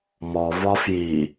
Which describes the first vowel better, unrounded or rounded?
rounded